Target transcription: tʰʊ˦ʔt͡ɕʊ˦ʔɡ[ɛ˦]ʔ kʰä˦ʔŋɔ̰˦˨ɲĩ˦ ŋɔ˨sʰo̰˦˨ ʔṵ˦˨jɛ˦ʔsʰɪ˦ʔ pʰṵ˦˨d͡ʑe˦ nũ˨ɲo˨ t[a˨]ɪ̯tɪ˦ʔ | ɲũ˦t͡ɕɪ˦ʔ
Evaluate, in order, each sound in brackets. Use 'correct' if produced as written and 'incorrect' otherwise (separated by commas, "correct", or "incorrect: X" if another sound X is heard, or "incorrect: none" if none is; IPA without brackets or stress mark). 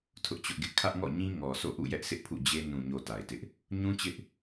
incorrect: ɪ˦, correct